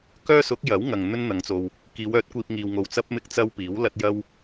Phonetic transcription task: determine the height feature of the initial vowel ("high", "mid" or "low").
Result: mid